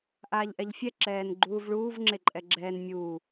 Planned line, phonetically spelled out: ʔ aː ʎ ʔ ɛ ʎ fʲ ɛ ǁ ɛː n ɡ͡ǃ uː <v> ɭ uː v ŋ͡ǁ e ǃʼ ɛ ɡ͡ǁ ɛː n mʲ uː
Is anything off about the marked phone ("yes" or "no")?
no